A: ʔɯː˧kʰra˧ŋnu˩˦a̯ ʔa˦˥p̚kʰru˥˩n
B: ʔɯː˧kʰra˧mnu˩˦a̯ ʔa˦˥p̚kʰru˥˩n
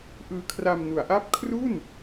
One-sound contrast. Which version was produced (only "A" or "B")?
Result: B